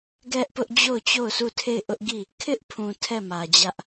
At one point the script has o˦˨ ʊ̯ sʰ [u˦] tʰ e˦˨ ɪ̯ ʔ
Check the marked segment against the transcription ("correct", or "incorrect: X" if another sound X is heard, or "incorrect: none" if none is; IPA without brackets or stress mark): incorrect: u˦˨